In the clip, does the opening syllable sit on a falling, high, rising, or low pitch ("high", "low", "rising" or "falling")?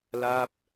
falling